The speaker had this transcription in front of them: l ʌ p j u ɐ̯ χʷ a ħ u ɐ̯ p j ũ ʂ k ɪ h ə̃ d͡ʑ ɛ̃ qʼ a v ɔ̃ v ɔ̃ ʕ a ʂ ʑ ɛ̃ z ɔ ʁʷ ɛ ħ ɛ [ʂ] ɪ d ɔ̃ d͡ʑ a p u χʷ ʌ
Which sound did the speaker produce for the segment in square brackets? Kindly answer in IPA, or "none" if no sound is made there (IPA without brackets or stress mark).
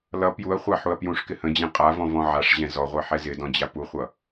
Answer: z